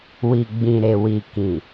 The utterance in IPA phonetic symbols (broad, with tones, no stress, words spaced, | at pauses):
wi˨ɡ͡bĩ˨ɾe˨ wi˨kĩ˨